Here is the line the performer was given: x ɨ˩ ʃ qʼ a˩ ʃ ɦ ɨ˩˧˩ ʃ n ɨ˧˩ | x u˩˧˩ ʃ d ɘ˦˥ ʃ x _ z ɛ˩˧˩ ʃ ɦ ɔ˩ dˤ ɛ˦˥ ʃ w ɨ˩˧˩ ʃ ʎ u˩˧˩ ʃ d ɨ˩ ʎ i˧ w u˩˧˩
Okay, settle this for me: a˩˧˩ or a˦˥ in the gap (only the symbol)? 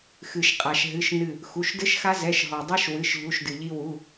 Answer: a˦˥